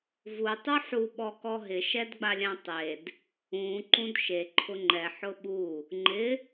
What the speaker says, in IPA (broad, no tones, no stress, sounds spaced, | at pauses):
v u tˤ u ħ u ɓ ɔ k ɔ ɦ ɪ ʃ ɛ d ɡ͡b a lʲ ã tˤ e d | ũ ǃ ũ d ʃ e ǃʰ ʊ ŋ͡ǃ ɛ ħ ʊ ɓ u | ŋ͡ǃ ɪ